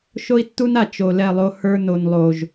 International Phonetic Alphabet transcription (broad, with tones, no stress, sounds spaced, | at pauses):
ʃ o˦ i̯ tː u˦ n a˨ t͡ʃ o˨ l ɛ˦˨ lˠ o˦ h ə˞˦ n o˨ n lˠ o˨ ʒ